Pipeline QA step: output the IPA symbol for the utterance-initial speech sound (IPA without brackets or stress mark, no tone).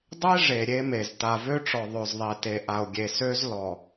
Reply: dˤ